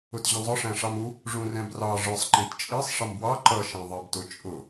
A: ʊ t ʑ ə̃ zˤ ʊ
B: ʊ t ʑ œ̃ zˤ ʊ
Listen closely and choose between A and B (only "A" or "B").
A